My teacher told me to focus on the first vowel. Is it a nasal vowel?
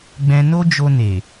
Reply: yes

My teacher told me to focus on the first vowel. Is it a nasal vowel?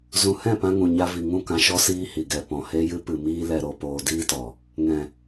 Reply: yes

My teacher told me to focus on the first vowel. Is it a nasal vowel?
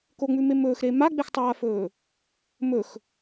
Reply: no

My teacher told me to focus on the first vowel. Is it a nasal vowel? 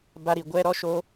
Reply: no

